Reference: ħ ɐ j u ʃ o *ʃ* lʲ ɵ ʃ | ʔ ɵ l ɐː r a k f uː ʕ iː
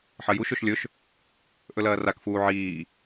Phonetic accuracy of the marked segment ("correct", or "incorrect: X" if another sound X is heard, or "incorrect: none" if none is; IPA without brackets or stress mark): correct